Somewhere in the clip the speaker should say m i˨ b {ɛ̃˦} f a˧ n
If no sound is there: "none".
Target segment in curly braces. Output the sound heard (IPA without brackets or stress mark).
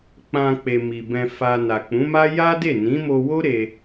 ɛ̃˧